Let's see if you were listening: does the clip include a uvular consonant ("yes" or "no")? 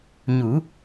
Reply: no